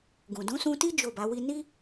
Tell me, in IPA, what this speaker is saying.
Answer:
ɡ ũ˨ d ũ˨˦ s ũ˧ t i˦ d͡ʒ o˦˨ b a˨˦ w i˦ n i˦

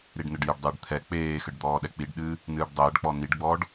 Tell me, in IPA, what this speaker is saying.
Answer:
ɾ i ɖ n ɘ ɖ j ɘ ɖ dˤ ɨː ɖ t̪ʰ ɛ k͡p eː x ɘ ɖ d̪ ɔː ɗ ɛ k͡p i ɖ ɗ ɨː | n ɨː ɖ dˤ ɘː ɖ k͡p ɔ n i ɖ ɡ͡b ɔː ɖ

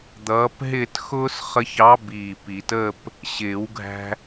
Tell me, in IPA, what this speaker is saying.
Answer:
d̪ ʌː˨˥ p ɦ ɪː˥˧ t x ʊː˥ s χ ə˧ ç ɑ˨˥ b iː˧˩ p i˨˩˦ t əː˥˧ p | ɕ ɪː˨˩˦ w ɡʱ æ̤˧

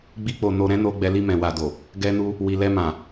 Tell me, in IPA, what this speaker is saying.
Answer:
ɡ͡b i˦ k͡p o˧ n o˧ ɾ ɛ̃˦ n o˧ ɡ͡b ɛ˧ l i˧ m ɛ̃˨ w a˨ d o˨ | ɡ ɛ˦ n u˦ | w i˨ l ɛ˧ m ã˨

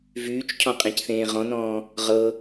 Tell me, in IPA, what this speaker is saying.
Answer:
v yː t͡ʃ cʰ ɔ̃ qʼ ẽ c θ ẽː ʁ ɔ̃ n ɔ̃ː | ʁ ɤ

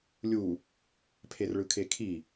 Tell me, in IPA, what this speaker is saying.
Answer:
lʲ u | pʰ e r ɭ ɯ kʰ e kʰ i

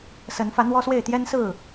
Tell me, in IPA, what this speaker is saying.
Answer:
s ə˨˦ n f ä˨˦ n̪ w ɔ˦ s w e˥˨ ɪ̯ t̪ j ɛ˦ n s ɹ̩˥˨

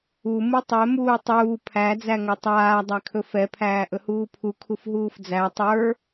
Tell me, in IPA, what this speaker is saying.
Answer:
u m u tˤ ɛ m uː tˤ uː pʰ æ d͡z æ ŋ ɵ tˤ aː dˤ æ kʰ ɵ f ɛ pʰ æː ʔ ɵ h uː pʰ u kʰ u f ɦ uː f d͡z æ tˤ ə˞

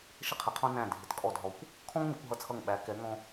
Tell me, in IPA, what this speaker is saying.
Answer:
ʃ ə˧ qʰ ɪ˩˧ qʰ ɔ̃˧ n æ̃˧˩ dʱ ɪ˩˧ t kʼ ɔ˧˩ d ɦ ɔ˩˧ kʷ | kʰ ɔ̃˥ ŋ n ʊ˩˧ kʷ ɦ ʌ˧˩ t͡sʰ ʌ˧˩ ŋ ɓ æ˩˧ k ɛ˩˧ ŋ ɔ̃˧

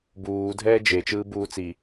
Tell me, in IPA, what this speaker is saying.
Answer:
b uː dʱ ɛː d͡ʒ e t͡ʃ ɯː b uː t͡s i

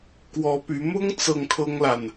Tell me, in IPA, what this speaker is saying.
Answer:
k w ɔ˧˥ p y˧˥ m ʊ˥ ŋ t͡s ɤ˥˩ ŋ kʰ ɤ˥ ŋ l a˨ n

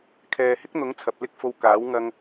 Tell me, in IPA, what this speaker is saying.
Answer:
kʰ ɛː˨ h ɪ˥ k̚ n̪ ʊ˨˥ ŋ t͡sʰ ɐ˨ p̚ l ɪ˥ k̚ f o˧ w k aː˨˥ w ŋ ɐ˧ ŋ

